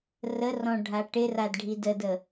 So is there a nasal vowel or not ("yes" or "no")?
yes